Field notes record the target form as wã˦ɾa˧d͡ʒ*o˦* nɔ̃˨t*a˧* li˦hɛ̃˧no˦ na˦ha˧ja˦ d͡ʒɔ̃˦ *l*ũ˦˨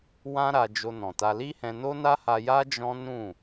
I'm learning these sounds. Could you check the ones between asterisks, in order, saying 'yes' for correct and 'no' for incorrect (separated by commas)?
no, yes, no